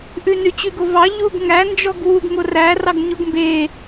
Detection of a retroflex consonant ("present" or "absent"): absent